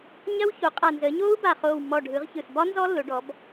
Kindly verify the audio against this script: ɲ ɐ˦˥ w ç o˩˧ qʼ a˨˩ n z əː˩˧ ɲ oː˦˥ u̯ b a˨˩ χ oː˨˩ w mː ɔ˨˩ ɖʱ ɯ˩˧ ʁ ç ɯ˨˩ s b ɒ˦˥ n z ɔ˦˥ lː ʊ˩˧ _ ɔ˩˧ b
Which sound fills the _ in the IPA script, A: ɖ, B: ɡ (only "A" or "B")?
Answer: A